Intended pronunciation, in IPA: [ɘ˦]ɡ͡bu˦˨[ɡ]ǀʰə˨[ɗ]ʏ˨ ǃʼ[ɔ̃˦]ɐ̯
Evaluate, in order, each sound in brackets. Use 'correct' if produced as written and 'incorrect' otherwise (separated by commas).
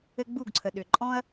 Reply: correct, correct, correct, correct